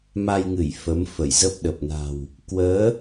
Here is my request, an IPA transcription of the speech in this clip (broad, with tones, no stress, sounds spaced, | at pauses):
m a˧ j ŋ ɨ˧˩ j f ə˨˦ m f ə˧˩ j z ə˦˥ p̚ ɗ ə˨˩ p̚ n a̤˨˩ w | k w əː˨˦